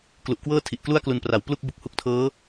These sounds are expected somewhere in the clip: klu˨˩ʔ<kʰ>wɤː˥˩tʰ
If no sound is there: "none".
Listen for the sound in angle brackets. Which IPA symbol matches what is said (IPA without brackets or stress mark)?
k